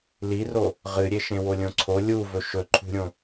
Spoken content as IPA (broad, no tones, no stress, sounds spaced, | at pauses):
l i r o | ʁ ɨ ɾʲ e ʃ ẽ w o lʲ õ ǀʰ o lʲ u v ɵ ʃ ɵ ǃʰ ṳ ɾʲ õ